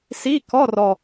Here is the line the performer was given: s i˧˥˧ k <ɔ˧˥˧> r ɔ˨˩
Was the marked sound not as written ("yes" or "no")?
no